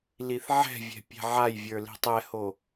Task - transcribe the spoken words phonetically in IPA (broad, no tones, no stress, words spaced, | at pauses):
liθʕɛ̤vʲɛ̤ pʲɛ̤ʕajvʲə˞ li̤tˤɛho